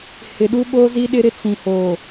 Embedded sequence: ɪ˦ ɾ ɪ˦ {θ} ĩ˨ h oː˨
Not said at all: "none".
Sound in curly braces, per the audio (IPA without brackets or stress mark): t͡s